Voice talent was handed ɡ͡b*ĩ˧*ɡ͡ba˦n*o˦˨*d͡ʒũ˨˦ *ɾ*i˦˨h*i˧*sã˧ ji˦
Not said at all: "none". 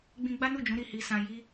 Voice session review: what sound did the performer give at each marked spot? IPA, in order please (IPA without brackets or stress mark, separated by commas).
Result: ĩ˧, u˦˨, ɾ, i˧